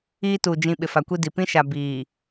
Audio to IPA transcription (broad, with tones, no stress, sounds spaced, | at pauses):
iː˦ t uː˨ d͡ʒ ĩ˨ ɓ ɪ˨ f a˨ kʷ i˦ d i˨ p ĩ˦ ʃ a˨ b iː˨